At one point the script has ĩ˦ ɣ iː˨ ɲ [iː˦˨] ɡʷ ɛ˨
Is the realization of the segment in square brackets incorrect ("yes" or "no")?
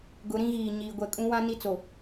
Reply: yes